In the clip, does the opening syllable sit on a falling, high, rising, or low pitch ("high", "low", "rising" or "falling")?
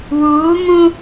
rising